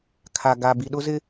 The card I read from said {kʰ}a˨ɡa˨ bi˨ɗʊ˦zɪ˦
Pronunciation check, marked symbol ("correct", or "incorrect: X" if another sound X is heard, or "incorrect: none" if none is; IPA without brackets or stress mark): correct